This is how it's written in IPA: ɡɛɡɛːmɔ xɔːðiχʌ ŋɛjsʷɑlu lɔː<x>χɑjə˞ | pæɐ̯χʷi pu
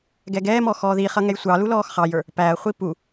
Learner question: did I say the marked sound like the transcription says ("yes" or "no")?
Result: yes